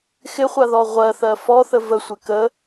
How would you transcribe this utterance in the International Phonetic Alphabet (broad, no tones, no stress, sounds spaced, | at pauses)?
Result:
x ɪ χʷ a ð ɔ ʁʷ ɜ θ ɜ f ɔ θ ə v ə sʷ ɪ k ə